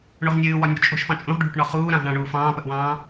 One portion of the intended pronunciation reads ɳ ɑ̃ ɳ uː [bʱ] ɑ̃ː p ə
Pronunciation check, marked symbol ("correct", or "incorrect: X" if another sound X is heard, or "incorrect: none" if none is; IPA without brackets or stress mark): incorrect: f